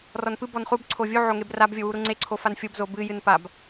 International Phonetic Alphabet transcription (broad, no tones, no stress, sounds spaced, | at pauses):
r ɔ n p ɨ b ɔ n χ u b ǀʰ o vʲ u ʕ o ŋ e b r a b vʲ o w u ɾ u ŋ͡ǀ e ǀʰ o f a n fʲ o b z o b ɨ j ɨ n p a b